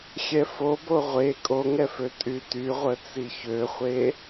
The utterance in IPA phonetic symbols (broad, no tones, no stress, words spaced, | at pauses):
xʲɛfobo ʁʷe kʼoŋɛfø tʼytyʁʷə t͡siçøχʷe